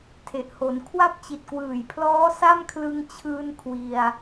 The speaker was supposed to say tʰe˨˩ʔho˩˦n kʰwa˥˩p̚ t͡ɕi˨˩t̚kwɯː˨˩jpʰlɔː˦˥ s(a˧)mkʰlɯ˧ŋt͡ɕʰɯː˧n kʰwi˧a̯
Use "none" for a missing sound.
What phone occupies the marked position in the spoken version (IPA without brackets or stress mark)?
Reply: a˥˩